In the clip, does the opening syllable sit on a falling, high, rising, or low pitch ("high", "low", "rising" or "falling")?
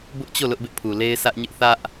high